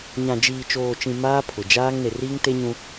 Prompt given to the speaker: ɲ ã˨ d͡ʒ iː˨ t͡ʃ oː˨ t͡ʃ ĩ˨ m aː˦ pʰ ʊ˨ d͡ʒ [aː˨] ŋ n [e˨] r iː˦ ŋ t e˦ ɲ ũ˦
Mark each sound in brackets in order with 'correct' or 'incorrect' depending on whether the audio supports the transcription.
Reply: incorrect: aː˦, correct

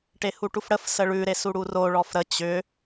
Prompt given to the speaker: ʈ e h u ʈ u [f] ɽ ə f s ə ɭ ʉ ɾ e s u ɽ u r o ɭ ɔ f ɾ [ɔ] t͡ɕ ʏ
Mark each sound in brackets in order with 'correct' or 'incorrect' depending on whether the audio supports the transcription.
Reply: correct, incorrect: ə

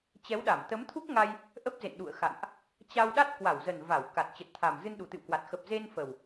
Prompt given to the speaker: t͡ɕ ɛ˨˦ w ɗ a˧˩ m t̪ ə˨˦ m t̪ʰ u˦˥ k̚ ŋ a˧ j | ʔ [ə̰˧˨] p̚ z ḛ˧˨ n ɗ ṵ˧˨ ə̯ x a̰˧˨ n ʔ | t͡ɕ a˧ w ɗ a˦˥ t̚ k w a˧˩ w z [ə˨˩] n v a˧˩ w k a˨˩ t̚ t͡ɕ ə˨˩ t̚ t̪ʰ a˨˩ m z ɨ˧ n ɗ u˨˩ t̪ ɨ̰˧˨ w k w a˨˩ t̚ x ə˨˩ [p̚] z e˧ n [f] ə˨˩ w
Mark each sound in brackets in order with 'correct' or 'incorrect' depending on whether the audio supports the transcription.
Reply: incorrect: ə˦˥, correct, correct, correct

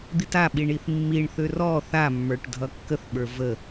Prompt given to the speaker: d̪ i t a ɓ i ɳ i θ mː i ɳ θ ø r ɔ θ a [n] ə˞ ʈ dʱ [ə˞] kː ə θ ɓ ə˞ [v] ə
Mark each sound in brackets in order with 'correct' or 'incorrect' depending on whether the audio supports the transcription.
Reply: incorrect: mː, incorrect: ʌ, correct

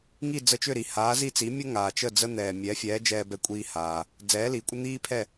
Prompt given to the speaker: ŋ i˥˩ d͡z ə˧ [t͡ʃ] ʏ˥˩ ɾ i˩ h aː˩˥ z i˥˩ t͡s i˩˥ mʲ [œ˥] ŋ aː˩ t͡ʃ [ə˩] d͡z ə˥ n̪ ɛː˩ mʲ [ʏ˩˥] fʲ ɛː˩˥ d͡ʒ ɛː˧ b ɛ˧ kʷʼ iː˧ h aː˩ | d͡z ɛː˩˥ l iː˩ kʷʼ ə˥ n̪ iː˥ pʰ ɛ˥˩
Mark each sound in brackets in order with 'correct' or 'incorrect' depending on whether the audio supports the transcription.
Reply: correct, incorrect: ə˥, incorrect: ə˥˩, incorrect: ɛ˩˥

